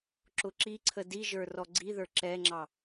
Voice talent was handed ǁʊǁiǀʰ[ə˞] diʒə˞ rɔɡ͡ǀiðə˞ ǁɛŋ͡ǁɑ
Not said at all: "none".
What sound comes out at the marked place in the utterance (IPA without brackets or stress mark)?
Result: ə